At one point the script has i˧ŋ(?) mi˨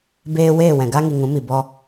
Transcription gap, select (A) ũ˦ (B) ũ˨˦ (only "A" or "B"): B